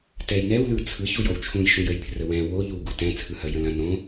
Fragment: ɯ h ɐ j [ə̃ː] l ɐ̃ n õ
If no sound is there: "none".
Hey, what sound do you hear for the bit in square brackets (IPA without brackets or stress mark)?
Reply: ə̃